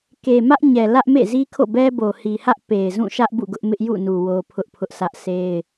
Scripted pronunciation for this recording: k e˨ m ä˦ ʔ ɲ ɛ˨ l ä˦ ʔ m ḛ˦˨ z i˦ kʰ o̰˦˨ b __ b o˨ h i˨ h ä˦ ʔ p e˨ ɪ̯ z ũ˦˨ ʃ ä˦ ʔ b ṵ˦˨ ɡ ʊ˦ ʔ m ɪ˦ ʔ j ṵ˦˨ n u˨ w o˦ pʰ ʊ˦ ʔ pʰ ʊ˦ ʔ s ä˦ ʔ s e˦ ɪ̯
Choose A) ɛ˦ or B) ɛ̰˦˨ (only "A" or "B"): A